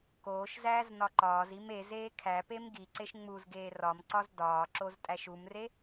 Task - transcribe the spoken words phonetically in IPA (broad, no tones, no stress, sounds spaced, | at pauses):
k oː ʃ z æː z n ɒ ǃ ɒː z i m e z eː kʰ æ p e m ɡ i ǀ e ʃ ŋ͡m u z ɡ eː r ɒ m ǀ ɒ z d ɒː ǁ o z tʼ æ ʃ u m r e